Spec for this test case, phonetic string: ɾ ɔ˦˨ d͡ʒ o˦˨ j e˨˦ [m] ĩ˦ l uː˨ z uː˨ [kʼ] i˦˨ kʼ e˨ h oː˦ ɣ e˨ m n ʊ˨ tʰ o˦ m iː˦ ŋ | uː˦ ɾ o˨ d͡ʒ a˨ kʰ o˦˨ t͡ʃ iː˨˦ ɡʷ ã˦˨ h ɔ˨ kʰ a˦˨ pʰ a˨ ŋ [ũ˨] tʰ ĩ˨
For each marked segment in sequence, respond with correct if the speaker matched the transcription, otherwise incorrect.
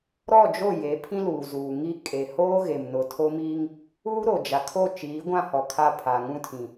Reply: incorrect: pʰ, incorrect: ŋ, incorrect: ũ˦

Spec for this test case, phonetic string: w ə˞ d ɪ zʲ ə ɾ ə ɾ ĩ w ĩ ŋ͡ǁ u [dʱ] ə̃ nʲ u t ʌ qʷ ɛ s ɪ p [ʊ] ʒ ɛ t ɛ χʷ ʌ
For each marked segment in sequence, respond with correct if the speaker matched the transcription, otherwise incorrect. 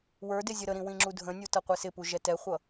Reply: correct, incorrect: u

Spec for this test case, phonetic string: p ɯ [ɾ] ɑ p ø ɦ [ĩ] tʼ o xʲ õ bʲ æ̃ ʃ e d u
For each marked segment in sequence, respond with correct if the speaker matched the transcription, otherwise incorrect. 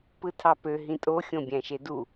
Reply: incorrect: tʰ, correct

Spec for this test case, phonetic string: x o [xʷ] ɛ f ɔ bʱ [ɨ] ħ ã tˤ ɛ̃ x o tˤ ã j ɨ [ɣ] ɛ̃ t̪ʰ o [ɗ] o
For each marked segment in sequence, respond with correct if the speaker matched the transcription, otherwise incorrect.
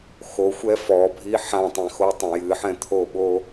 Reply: correct, incorrect: i, incorrect: ħ, incorrect: ɓ

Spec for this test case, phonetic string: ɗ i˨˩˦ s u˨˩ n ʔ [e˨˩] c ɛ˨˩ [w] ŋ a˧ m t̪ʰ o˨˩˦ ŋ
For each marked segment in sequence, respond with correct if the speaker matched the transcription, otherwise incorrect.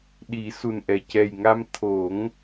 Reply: incorrect: ɛ˨˩, incorrect: j

